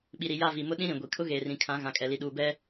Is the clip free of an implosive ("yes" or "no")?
no